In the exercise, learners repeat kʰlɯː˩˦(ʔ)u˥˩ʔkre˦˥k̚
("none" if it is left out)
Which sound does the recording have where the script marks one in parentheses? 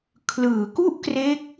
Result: k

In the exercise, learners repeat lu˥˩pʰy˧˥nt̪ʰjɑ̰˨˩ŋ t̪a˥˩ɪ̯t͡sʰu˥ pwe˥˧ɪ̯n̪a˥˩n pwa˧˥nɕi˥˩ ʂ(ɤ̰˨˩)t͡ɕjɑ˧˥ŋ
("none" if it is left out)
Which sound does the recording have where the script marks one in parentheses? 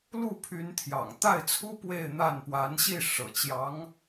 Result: ɤ̰˨˩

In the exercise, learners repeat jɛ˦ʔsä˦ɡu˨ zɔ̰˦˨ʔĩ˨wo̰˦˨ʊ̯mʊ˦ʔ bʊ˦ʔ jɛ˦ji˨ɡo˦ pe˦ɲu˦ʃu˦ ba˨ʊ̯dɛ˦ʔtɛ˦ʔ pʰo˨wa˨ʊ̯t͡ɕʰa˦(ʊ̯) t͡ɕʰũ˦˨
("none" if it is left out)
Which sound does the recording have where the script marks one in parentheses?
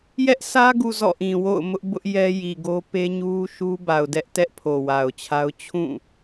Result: ʊ̯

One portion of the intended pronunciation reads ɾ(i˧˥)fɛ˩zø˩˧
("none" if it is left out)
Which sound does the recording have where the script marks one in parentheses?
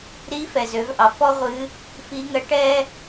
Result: i˧˥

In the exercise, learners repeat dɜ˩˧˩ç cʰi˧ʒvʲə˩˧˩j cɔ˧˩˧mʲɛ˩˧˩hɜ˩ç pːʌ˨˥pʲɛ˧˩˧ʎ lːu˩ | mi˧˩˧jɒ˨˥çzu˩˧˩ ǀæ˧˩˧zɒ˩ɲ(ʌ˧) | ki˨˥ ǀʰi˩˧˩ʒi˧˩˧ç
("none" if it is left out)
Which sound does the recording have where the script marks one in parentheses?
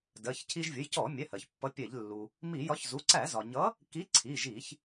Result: ʌ˨˥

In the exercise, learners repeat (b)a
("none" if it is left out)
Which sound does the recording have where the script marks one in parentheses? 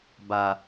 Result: b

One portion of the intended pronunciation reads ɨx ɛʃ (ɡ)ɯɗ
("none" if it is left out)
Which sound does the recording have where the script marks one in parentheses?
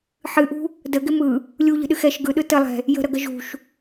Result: ɡ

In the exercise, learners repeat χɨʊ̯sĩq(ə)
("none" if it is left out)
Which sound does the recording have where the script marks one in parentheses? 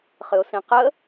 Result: ə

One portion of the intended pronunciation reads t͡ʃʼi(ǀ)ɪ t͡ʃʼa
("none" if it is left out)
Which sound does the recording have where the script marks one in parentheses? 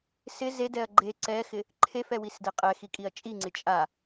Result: ŋ͡ǀ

